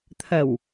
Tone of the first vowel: low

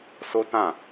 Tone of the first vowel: high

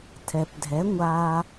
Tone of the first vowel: low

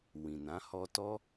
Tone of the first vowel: low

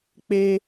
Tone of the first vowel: high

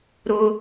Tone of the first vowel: high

